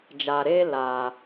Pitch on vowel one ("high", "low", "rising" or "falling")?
low